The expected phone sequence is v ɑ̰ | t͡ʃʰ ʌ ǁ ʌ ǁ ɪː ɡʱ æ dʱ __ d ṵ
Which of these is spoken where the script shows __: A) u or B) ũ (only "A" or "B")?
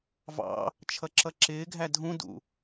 B